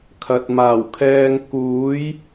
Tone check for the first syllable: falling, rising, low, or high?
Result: low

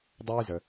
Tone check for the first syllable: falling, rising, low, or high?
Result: high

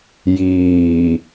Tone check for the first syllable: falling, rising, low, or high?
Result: low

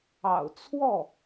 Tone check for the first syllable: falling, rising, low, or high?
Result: low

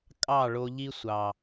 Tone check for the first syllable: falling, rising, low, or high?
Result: falling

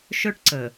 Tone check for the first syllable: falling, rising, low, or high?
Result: high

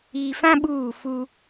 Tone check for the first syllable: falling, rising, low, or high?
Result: low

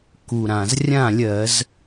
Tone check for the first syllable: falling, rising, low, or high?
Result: low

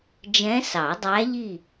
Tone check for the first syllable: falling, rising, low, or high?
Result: rising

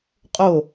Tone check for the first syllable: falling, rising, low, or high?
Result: falling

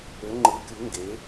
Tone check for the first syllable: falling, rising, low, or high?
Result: rising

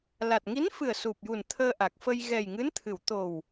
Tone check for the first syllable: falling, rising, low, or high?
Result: low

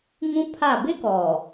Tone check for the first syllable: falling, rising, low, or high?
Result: high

